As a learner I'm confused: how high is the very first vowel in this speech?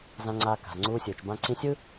low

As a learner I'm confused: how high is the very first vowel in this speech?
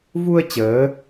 high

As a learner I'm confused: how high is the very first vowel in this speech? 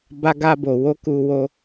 low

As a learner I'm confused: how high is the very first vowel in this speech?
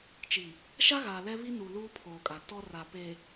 high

